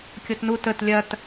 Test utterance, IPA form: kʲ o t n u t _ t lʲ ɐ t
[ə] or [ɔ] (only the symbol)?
ə